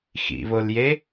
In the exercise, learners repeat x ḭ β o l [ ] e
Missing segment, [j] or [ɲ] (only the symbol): j